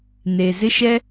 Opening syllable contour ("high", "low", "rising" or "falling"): low